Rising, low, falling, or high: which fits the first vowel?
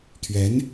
rising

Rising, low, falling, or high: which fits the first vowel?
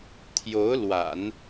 rising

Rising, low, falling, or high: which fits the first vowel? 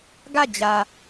falling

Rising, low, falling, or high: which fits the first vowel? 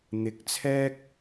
low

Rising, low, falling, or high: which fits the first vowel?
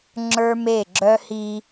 high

